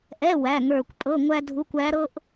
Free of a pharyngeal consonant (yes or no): yes